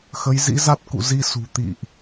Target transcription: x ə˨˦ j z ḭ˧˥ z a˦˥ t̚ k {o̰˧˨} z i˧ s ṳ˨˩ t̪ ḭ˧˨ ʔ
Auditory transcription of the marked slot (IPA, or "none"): ṵ˧˨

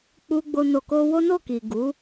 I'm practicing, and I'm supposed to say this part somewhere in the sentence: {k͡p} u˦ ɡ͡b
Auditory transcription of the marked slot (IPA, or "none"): k͡p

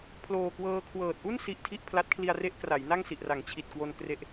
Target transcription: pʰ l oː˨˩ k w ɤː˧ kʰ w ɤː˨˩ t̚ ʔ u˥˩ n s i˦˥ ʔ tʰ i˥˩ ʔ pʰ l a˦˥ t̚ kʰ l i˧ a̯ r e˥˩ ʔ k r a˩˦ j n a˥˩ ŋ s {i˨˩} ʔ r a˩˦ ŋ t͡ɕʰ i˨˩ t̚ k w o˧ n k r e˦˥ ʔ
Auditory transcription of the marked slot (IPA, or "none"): i˨˩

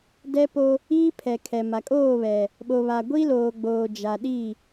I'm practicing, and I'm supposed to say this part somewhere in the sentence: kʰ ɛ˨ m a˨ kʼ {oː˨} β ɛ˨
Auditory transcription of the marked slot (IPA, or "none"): oː˦˨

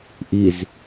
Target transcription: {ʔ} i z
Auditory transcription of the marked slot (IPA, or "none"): ʔ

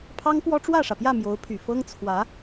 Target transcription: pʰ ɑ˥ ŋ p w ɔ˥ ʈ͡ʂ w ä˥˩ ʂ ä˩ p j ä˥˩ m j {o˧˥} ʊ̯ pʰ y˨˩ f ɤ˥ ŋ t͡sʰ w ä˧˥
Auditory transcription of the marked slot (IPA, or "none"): o˧˥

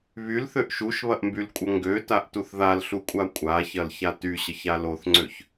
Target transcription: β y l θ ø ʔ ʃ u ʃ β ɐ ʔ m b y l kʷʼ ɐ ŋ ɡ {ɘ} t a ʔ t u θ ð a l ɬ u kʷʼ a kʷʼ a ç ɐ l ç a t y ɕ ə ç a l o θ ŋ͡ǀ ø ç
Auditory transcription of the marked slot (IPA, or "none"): ø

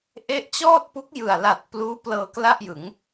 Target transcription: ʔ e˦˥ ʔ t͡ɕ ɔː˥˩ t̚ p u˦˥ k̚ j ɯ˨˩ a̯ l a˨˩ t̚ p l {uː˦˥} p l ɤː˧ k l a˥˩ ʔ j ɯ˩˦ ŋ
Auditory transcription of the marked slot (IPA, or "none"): uː˦˥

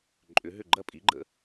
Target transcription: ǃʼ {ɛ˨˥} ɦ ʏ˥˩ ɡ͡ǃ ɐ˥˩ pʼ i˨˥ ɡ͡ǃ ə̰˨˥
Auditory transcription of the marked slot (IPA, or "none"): ʏ˨˥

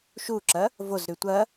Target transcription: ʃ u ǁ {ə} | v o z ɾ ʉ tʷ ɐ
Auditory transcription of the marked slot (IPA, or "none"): ɐ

